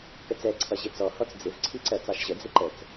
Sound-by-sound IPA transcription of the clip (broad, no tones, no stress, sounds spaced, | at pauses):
k ə t͡s ɛ ǀʰ ʌ ʑ ɪ t͡s ɔ h ɔ t͡s d͡z ɪ v ǀʰ i ǀ ɜ t͡s ɑ ʃ ʑ ə d͡z ɪ ǃ ə t͡s